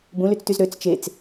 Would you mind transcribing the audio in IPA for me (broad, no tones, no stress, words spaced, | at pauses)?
bũlyt͡styz ɾøt͡s t͡ʃet͡s